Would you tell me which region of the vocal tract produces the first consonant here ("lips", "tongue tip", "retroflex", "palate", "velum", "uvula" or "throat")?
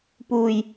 lips